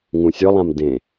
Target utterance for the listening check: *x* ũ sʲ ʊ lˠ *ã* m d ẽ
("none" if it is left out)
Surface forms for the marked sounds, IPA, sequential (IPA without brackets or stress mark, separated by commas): ŋ, ã